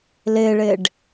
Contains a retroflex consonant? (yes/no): yes